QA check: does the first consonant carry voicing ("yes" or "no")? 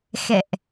no